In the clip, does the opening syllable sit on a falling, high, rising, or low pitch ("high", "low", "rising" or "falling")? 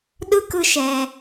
high